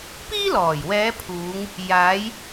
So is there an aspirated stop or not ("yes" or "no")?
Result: yes